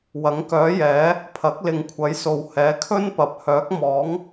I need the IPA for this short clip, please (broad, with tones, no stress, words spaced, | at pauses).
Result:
wɐ˨˥ŋkœː˨˥jɛː˨˥ | pʰɐ˨˥k̚lɪ˨ŋkʷʰɐ˨˥jso˨w hɛː˨˥kʰɵ˥npɐ˨p̚ hœː˨˥k̚mɔː˨˥ŋ